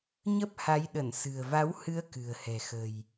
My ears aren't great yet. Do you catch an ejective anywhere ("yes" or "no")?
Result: no